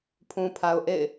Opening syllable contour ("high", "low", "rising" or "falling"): low